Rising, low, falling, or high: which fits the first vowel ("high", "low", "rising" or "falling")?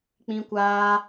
high